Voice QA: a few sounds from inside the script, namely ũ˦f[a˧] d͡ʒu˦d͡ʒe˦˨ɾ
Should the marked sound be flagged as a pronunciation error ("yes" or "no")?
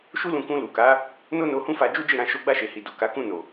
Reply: no